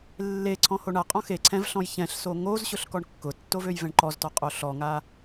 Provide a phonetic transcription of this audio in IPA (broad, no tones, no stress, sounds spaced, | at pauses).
lː e ǀʰ ɔ̃ h o ɳ a qʼ ɔ̃ x e ǀʰ ɛ̃ v ɬ ɔ̃ j ç ɛ̃ ɬ s o ŋ o z ɕ ʊ ɬ k ɔ ɳ kː ʊ tː o v ø j v ɛ̃ ɳ ǃ ɔ z t ɔ qʼ o ɬ ɔ ŋ a